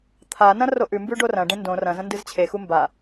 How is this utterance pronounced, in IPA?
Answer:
t̪ʰ a n ɐ̃ r o ʔ ʉ m b ʉ ɖ o r ɐ̃ ɖ ẽ n d õ r ɐ̃ z ɐ̃ n d ɨ z t͡ɕʰ e x u m b a

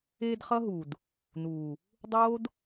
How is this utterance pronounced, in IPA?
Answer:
eː˧ d χ ʌ˦ ɦ u˨ d | n uː˨ | dˤ oː˦ d

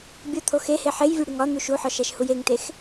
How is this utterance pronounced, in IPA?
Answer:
bʲ o t̪ʰ o x e h e ħ e j vʲ u ɽ i ŋ ɒ n̪ u ʃ u ħ ɒ ʃ æ ʃ h u j e ŋ t e x

